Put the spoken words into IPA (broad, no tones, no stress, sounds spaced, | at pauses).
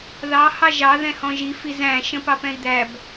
ð ɑ h ɑ ʒ ɑ ð ɛ̃ h ɔ̃ ʒ i f i z æ̃ ʃ ə̃ p ɑ p ɛ̃ i̯ d̪ æ b